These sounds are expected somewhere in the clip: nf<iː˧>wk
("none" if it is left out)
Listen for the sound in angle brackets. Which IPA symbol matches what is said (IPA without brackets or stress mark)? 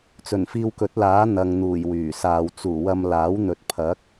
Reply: iː˧